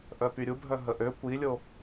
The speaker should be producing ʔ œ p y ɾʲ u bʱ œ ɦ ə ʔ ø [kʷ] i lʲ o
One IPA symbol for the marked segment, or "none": kʷ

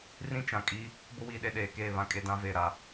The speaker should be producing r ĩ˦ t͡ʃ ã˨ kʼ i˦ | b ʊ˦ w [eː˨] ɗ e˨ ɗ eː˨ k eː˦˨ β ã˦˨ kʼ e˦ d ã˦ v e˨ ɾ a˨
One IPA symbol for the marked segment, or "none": iː˨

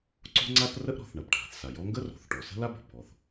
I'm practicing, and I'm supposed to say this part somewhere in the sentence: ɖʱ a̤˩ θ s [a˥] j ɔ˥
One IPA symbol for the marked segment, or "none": a˩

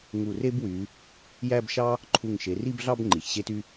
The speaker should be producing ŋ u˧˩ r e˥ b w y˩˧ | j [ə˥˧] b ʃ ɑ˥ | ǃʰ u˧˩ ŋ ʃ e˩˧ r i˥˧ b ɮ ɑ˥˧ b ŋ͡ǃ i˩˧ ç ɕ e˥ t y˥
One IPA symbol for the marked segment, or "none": æ˥˧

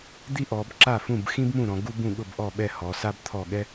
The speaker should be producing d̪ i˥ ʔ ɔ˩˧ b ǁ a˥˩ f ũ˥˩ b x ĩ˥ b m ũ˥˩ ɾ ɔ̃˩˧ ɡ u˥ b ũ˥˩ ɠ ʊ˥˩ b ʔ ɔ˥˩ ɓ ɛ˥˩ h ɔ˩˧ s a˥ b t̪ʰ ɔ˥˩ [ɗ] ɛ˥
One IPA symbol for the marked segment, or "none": ɠ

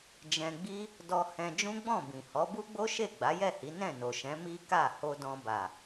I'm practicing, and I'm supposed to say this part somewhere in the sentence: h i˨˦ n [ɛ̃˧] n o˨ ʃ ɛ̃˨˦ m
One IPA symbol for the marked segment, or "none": ɛ̃˦˨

